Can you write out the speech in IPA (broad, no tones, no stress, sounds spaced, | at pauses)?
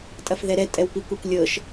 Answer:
tʼ ɐ f ð ɛ ɾ ɛ tʼ ɛ w p i kʷ e kʷ lʲ ɤ ʃ